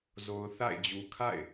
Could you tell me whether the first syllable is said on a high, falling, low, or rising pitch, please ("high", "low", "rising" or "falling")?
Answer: low